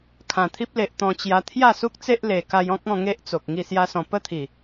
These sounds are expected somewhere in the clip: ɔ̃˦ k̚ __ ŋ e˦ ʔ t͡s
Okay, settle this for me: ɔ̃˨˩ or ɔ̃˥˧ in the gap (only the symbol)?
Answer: ɔ̃˥˧